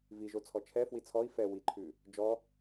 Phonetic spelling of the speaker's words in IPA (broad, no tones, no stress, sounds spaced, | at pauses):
v i ʒ o t͡sʰ ɔ t͡ʃʰ ɛ f w i t͡sʰ ɔ i̯ f ɛ w i ǃʰ ʉ | d͡ʒ ɔ